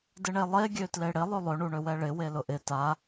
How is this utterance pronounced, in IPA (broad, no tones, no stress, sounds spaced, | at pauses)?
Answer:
d ɪ ɳ e lˠ e ɡʲ ø t l e ɽ ɪ lˠ ø lˠ ø ɳ u ɳ ø w ɛ ɭ ɪ w e l ʊ ʔ ɪ t a